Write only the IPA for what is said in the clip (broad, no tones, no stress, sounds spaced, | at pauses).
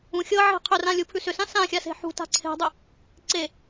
ũ xʲ ɤ ʕ e̤ qʰ ʏ r ã lʲ u pʰ ʉ s ʏ s ã s ã xʲ a s e̤ ħ ṳ t a̤ ǀʰ e̤ dˤ ʏ | ǀ e